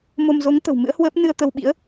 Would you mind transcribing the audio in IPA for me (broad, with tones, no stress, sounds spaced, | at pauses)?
m o˧ m z o˨˦ ŋ t̪ ə̤˨˩ w m ɨ̰˧˥ ə̯ h w əː˦˥ p̚ n ɨ˧ ə̯ t̪ ə˧ w ɓ ḭ˧˥ ə̯